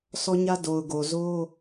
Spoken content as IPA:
sʰ ɔ˦ ɲ ä˦ d o˨ ʊ̯ ɡ o˨ z o˦

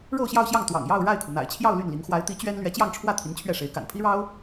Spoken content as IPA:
ɻ o˥˧ ʊ̯ ɕ j ɑ˥˧ ʊ̯ ɕ j ɑ˥˩ ŋ t̪ w ɑ̰˨˩ ŋ j ɑ˥˧ ʊ̯ ɻ a˥˩ ɪ̯ kʰ u˩ n̪ a̰˨˩ ɪ̯ t͡ɕʰ j ɑ˥˧ ʊ̯ l y˥˩ n l i˧˥ ŋ x w a˧˥ ɪ̯ t̪ i˧˥ t͡ɕ ɥ ɛ˥ n l ɥ ɛ˧˥ t͡ɕ j ɑ˥˧ ŋ ʈ͡ʂʰ w ä˥˩ t̪ʰ i˧˥ n t͡ɕʰ ɥ ɛ˥˩ ʂ e˧˥ ɪ̯ k a̰˨˩ n pʰ i˥ ɻ ɑ˥ ʊ̯

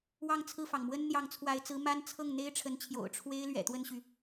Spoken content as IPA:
w ɑ˥˧ ŋ t͡sʰ ɹ̩˥˩ f ɑ˩ ŋ m w ə˥ n n̪ j ɑ˧˥ ŋ t͡sʰ w a˧˥ ɪ̯ t͡s ɹ̩˧˥ m a˥ n t͡sʰ ɤ˥˩ ŋ n̪ e˥ ɪ̯ ʈ͡ʂʰ ə˧˥ n t͡ɕʰ j o̰˨˩ ʊ̯ ʈ͡ʂʰ w e˥ ɪ̯ l ɥ ɛ̰˨˩ t̪ w ə˥˩ n ɕ y˩

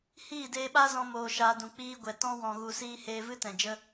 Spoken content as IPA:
h iː˦˨ d eː˧ ɓ a˦ z ɔ̃˧ m oː˧ ʃ aː˧ d ũ˨ k͡p iː˧ ɡʷ ɛ˨ t ɔ̃˧ w ɔ̃˨ ɣ u˨ s iː˧ h eː˧ v ɨ˦ t ɛ̃˨ d͡ʒ ə˦

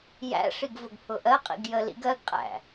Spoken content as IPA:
j æ̰ ʂ i ɡ v ʊ ɡ pʰ ʊ ʔ ɜ qʼ ḭ ɡ j ə l ḭ ɡ ɜ ɡ qʼ æ̰

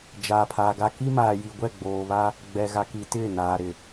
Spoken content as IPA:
d͡ʒ aː˨ pʰ aː˨ ɡ a˦ k i˦ m aː˨ j i˨ ɡʷ ɛ˦˨ ɡ͡b oː˨ β a˦ | ɡ͡b ɛ˨ ɣ a˨ k i˨ t ɪ˦˨ n aː˨ ɾ ɪ˨

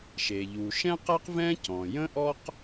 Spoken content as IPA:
ʃ e˩ ʎ u˩ ʃ ɛ̃˥ q ɛ˥ q v ɛ̃˥ c ɔ̃˩ j ə̃˥ ʔ ɔ˥ q

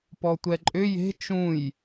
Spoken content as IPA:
p ɔ tʷ ɛ ǃʼ ʏ j e̤ t͡ʃ ũ j

